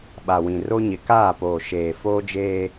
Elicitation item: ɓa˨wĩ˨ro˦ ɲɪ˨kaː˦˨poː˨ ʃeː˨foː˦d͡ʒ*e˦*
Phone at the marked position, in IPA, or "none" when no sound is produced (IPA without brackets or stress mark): eː˦